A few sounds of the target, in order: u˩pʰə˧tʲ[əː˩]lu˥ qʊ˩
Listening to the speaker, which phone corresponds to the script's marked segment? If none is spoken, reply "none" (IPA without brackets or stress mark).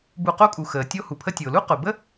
ʊː˩